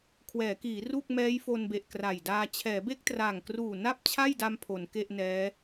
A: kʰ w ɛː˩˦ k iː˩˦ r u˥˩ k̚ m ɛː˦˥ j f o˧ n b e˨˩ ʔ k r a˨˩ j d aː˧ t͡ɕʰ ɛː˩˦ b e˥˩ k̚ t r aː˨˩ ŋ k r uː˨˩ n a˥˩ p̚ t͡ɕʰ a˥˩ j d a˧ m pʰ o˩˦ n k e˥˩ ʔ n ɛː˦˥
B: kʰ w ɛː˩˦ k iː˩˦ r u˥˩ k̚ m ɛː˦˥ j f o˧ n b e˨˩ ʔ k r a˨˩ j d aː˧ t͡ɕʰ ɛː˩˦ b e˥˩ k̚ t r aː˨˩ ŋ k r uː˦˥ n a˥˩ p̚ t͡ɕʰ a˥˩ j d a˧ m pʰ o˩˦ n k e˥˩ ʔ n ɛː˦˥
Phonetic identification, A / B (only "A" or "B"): A